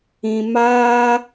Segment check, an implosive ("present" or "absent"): absent